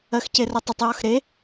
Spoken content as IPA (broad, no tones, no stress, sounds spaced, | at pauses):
ɜ x c e r ɜ tˤ ə tˤ j ɒ x ɾ e